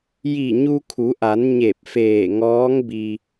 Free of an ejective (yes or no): yes